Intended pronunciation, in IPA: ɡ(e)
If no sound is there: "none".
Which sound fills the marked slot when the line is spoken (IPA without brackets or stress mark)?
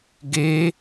e